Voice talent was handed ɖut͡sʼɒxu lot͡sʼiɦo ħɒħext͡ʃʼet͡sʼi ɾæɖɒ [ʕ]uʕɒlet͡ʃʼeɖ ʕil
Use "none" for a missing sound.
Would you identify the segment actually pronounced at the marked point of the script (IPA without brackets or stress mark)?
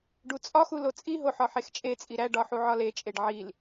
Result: ħ